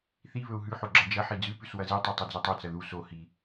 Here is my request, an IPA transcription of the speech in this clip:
θ i β ɵ u̯ ɦ ʉ ħ o ɡ͡ǁ ɐ d͡ʒ ɐ ħ i d͡z ʉ p ʉ s w ɐ z i tˤ ʉ tˤ ɵ d͡z i tˤ o t͡s ɐ ð u s o h i

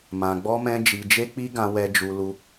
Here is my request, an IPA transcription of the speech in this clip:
m ã˧ ɡ͡b ɔ˦ m ɛ̃˦ d͡ʒ i˧ d͡ʒ e˦ k͡p i˦ ɡ ã˧ w ɛ˧ d͡ʒ u˧ l u˦

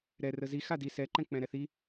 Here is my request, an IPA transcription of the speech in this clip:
ɾ ɛ r ə z i x a d i s ɛ ǃ ɛ̃ k͡p ɛ̃ ɾ ɛ θ i

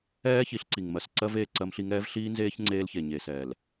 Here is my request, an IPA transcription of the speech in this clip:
ɛː˦ ç i˨˦ ɬ ǀ i˨ ŋ m ɜ˨ s ǀ ɜ˦ v eː˨ ǀ ɜ˦ m ɬ i˦ ŋ ɛː˦ v ɬ iː˦ n z eː˦ ç ŋ͡ǀ eː˦ l ç e˨ ɲ e˨ s ɛː˨ l

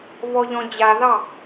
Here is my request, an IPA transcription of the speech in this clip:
β ɔ ʎ ɔ̃ d͡ʑ a ð ɑ

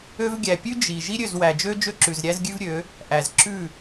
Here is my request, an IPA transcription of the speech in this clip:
ø˧ v ɡʲ æ˨ pʲ ʉ˦ d͡ʒ i˨ ʒ i˦ ɾʲ ø˦˨ z w æ˨ d͡ʒ ø˦ d͡ʒ ø˦ ǁ ʉ˨ z ɾʲ æ˦ z ɡʲ ʉ˦ v ɾʲ ø˨˦ | ʔ æ˨ z ǁ ʉ˦˨

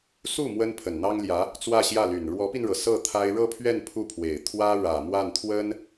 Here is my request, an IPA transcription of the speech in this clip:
s u˥˩ m w ə˥ n pʰ ə˨˩ n n̪ ɑ˥ ŋ l j ä˧˥ | t͡s w ä˥˧ ɕ j ä˥˩ l y˨˩ n ɻ w ɔ˧˥ p i˧ n ɻ ɤ˩ s ɤ˥˩ t̪ʰ a˥ ɪ̯ ɻ ɤ˥˧ pʰ ɥ ɛ˥˧ n pʰ u˥˩ pʰ w e˨˩ ɪ̯ t̪ʰ w ä˥ ɻ ä˨˩ m w a˥˩ n t̪ʰ w ə˥ n

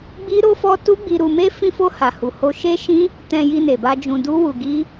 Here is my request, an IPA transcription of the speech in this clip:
ɡ͡b i˦ ɾ o˦ f ɔ˦ t u˦ ɡ͡b i˧ ɾ u˧ m e˦ f ĩ˧ f o˧ h a˨ h u˨ h o˧ ʃ e˦ ʃ ĩ˦ | t ɛ̃˧ j i˧ n e˨ b a˧ d͡ʒ ũ˧ d u˦ w u˧ ɡ i˦

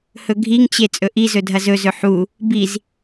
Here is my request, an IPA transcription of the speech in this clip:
h ɵ ɡʱ i ŋ t͡ɕ e t͡sʼ ɵ ʔ i z ɵ dʱ ɐ z ɵ z ɵ ħ u | b i z

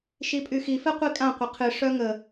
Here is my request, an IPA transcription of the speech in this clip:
ʃ i pʼ y x i f ɛ qʷ i kʼ ã qʷ ə qʰ ɨ ʂ œ ŋ ə

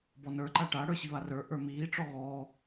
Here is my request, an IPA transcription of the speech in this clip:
b ɔ n ə˞ ǃ a ʈ a ɽ ə˞ ɕ i β a r ə˞ ʔ ə˞ m iː ʈ͡ʂ ɔ ɣ ɔː

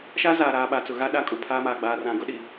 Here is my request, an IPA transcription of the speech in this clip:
ʃ a˦ z aː˨ ɾ aː˨ ɓ a˨ t͡s ʊ˨ ɣ a˦ ɗ a˦˨ kʼ u˨ pʰ aː˦ m aː˨ ɡ͡b aː˨ r ã˨ ɡ ʊ˦ ɗ i˨

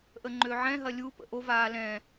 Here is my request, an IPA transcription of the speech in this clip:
ʔ ə ŋ͡ǃ ø ʕ ɛ̃ ɦ ɐ lʲ u p ə̰ ʔ o v aː l ɛ̃

